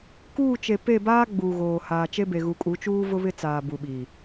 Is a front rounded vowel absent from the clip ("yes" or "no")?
yes